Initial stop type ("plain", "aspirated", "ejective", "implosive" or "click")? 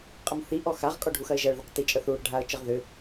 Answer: ejective